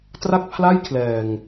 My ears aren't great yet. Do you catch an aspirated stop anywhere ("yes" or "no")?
yes